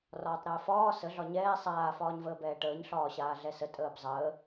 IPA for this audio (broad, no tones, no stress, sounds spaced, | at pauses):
r ɒː tˤ ɾ əː f ɒː s ə ɮ ɒ ɲ ɛː sˤ aː f ɒː ɲ v əː b ɛː ʈ əː ɲ ɬ ɒː ɕ aː ɮ ɛ s ə tʼ əː b zˤ əː